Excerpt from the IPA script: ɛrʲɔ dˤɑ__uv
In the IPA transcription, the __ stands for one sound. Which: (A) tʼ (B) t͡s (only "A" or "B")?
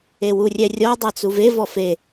B